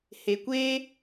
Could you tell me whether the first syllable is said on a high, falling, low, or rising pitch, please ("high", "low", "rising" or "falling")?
low